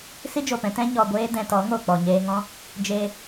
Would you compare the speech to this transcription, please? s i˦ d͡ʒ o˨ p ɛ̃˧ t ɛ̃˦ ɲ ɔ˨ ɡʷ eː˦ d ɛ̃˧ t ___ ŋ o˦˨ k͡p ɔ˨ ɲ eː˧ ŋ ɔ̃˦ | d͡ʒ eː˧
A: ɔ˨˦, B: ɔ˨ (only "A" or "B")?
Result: A